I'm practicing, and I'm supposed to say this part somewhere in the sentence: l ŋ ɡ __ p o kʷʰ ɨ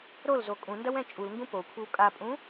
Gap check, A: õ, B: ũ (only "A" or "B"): B